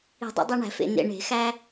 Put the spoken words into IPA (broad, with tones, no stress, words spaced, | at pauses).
i̤˨˩˦dˤḛ˨˩˦dˤæ˧ɳæ̤˨˩˦ fḛ˨˩nḛ˨˩ ɳe̤˨˩˦xæ˧